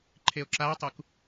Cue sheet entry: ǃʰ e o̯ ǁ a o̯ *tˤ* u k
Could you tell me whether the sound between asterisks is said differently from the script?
no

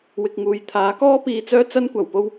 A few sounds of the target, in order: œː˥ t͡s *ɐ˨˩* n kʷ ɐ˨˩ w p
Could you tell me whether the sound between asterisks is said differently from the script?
yes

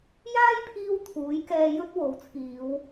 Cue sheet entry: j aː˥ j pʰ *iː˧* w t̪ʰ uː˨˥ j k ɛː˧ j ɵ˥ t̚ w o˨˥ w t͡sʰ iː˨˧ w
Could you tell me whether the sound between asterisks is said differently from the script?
no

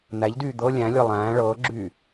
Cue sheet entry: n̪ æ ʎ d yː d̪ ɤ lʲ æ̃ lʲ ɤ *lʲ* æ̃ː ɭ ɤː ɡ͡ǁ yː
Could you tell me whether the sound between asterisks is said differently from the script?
yes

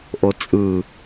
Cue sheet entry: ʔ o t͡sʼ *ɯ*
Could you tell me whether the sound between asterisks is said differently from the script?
no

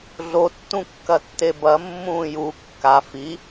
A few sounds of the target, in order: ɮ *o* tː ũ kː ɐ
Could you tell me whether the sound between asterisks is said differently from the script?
no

